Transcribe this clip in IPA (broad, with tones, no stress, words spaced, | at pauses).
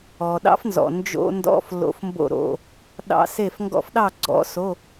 ɔ˩ɗɑ̰˦˥fnzɔ̰˩ nd͡ʒo̰˧˥˧ndɔ̰˧˥˧f lo̰˧˥˧fmbo̰˥˨ɾo̰˧˥˧ | ɗɑ̰˦˥se˥˨f ŋɡɔ̰˦˥fɗɑ˥˨ɡ͡ǀɔ̰˦˥so˧˥˧